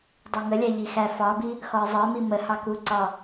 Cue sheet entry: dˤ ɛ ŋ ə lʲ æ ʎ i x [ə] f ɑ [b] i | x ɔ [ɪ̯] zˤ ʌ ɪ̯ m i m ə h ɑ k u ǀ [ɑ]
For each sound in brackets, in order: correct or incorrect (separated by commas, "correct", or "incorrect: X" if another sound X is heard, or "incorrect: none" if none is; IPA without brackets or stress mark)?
incorrect: æ, correct, correct, incorrect: ɒ